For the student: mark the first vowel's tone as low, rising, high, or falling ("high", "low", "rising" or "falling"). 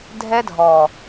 high